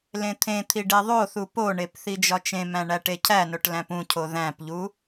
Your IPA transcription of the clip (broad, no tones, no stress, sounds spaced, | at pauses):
l ẽ t̪ʰ ẽ t̪ʰ i ɖ e ðˤ o θ u p o ɳ e p θ i d͡ʒ ɒ t͡ʃ ẽ m æ̃ ɳ æ ʈ e cʰ æ n o ʈ l æ̃ p ũ cʰ o ð æ̃ p ʎ u